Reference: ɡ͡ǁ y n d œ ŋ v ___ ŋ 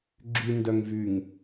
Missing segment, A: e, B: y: B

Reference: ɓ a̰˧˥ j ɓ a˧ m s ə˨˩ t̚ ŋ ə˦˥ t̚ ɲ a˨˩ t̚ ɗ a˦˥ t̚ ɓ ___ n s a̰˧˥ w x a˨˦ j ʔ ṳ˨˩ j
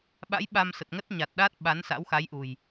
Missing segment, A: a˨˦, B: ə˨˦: A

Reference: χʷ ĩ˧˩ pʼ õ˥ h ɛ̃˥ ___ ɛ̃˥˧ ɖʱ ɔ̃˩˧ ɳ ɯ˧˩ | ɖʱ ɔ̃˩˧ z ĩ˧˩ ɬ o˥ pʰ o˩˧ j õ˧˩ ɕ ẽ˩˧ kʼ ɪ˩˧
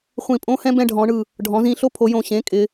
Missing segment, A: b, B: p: A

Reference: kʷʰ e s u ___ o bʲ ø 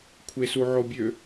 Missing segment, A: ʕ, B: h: A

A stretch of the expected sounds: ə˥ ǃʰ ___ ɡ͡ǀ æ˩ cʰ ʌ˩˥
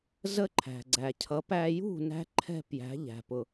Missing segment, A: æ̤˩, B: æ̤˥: A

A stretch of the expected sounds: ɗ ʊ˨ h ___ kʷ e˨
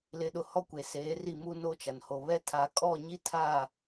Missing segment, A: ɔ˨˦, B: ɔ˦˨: B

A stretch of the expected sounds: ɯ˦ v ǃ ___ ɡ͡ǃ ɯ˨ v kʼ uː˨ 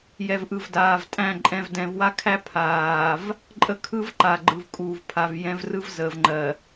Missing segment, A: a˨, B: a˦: A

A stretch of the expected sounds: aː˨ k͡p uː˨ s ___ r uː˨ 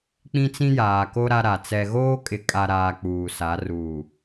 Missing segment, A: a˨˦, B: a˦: A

